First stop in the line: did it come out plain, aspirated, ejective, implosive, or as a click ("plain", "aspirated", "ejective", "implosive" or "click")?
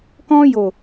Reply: plain